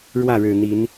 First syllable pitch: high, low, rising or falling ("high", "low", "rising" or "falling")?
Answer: falling